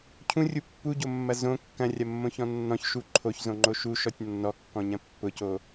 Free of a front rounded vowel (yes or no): yes